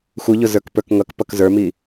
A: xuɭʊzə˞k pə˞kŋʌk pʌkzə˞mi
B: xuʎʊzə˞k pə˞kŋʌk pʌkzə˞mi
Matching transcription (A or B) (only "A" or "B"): B